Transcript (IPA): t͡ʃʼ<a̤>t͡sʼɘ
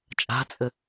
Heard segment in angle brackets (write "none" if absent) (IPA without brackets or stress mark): a̤